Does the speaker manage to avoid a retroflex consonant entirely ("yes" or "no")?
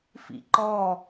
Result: yes